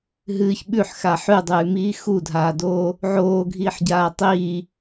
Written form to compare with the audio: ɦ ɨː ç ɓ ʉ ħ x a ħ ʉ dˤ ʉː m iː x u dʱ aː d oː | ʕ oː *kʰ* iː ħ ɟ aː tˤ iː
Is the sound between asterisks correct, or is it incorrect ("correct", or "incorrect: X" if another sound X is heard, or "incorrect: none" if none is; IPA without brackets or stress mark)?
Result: incorrect: ɡʱ